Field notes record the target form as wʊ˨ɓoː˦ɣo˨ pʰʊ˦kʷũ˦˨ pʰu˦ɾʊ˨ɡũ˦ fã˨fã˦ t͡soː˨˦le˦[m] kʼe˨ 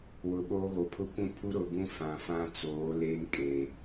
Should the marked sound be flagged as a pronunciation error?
no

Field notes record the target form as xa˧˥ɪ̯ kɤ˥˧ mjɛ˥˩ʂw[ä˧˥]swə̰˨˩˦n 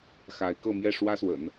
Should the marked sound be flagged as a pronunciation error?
yes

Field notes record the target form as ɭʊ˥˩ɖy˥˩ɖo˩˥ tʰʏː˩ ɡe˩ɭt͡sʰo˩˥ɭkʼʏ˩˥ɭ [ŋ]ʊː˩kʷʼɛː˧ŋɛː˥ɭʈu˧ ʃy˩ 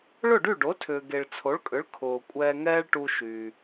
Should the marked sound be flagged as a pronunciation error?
yes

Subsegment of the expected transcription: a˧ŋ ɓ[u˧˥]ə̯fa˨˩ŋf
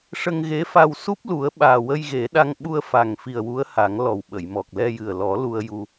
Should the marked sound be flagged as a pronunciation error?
yes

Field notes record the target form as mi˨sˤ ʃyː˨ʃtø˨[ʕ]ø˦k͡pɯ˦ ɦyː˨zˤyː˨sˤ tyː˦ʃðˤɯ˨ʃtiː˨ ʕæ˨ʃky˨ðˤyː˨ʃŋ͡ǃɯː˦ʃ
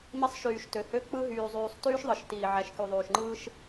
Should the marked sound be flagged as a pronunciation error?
yes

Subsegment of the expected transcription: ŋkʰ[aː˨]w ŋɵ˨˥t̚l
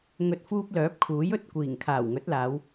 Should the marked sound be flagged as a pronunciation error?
yes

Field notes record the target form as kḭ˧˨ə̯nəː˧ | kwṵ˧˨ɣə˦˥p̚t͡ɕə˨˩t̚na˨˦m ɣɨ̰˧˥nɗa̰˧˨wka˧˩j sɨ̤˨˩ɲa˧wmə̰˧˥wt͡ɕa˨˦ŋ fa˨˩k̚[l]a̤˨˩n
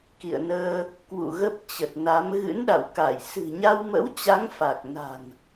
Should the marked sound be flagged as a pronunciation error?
yes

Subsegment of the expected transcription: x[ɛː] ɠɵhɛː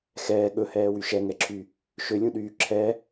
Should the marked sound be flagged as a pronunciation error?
no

